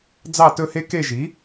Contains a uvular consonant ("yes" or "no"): no